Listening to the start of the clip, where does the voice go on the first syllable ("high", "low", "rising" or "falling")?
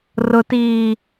high